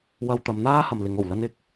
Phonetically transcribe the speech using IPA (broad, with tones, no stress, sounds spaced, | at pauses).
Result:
w ɐ˧ w t̪ ɐ˨˧ m n̪ aː˥ h ɐ˨ m l ɪ˨˧ ŋ o˨˩ w l ɐ˥ n ɪ˧ k̚